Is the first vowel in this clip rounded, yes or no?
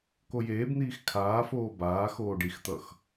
yes